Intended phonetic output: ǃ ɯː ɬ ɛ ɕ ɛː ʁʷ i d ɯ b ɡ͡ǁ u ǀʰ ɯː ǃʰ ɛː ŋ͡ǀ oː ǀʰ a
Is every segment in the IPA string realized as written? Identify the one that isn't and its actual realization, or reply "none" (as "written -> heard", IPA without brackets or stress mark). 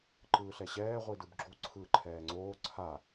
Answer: none